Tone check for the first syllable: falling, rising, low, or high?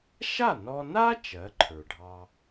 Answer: falling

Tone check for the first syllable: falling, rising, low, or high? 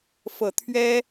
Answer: low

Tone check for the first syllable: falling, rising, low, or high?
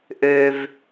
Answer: low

